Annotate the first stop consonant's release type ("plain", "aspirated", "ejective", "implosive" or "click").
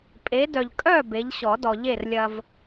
ejective